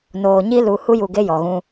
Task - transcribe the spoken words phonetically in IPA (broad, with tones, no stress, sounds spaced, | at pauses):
n oː˨ ɲ i˦ l u˨˦ h u˦ j u˨ ɡ e˦ j ɔ˨ ɣ ũ˦